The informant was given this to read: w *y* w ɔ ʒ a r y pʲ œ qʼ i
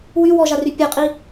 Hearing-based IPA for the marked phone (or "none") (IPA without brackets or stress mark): y